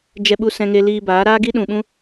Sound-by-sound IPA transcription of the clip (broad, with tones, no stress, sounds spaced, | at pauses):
d͡ʒ ɛ˧ ɓ u˧ s ɛ̃˧ ŋ e˧ l iː˧ b aː˨˦ ɾ aː˦ ɡ i˦ ɗ ũ˨ ɓ ũ˦